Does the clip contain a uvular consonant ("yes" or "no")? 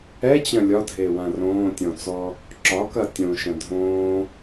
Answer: no